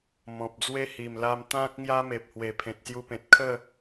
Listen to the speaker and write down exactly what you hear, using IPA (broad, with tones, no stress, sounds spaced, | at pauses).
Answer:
m ɔ̃˨ p̚ d͡z w e˦ h i˨˩ m l a˧ m t̪ ã˦ k̚ ŋ j a˦ m e˨ p̚ h w e˨˩ pʰ ẽ˨ t̚ s j u˧ p ẽ˨ t̚ kʰ ə˥˧